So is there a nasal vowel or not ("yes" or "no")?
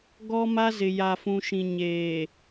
yes